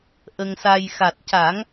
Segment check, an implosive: absent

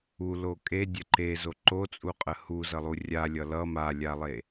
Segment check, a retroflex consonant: absent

